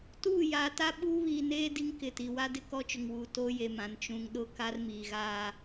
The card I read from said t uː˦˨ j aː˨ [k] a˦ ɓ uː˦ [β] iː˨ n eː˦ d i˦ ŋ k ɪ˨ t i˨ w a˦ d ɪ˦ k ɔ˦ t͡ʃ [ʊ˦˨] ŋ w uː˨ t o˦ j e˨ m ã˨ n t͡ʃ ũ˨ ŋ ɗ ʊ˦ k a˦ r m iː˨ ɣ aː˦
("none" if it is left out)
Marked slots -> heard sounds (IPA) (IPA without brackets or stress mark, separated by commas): t, β, ʊ˨